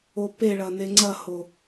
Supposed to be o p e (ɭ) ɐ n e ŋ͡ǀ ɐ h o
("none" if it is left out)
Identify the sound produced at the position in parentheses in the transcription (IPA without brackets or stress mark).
ɭ